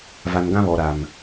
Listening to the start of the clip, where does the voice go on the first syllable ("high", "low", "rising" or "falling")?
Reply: low